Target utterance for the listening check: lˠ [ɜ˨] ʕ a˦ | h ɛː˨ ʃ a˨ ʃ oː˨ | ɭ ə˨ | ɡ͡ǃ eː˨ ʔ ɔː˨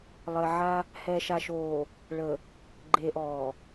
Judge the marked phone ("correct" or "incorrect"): correct